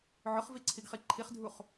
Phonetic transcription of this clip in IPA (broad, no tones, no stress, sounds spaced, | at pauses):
ʕ ʊ χ v i ǀʰ i ɡ χ i ǃʰ i χ dʱ u χ